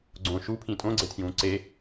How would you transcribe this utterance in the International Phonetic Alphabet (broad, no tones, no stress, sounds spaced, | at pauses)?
ɡ͡ǀ õ ʃ u pʰ ĩ tʼ õ ɡ͡ǀ e tʰ j ũː ǀ e